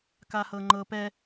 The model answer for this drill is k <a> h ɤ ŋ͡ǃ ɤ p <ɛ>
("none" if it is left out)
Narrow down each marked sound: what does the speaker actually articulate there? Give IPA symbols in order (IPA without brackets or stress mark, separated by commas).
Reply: a, ɛ